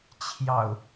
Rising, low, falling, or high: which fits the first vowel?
low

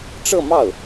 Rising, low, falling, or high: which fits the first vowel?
falling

